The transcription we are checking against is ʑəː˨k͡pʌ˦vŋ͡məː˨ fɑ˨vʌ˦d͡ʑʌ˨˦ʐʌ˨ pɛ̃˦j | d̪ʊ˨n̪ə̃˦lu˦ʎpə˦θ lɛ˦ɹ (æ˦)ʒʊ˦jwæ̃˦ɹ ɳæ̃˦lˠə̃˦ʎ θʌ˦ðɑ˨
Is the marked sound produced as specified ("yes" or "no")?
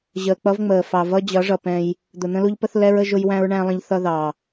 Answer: no